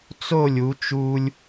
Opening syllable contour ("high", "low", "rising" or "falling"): falling